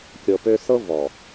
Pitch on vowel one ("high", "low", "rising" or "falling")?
low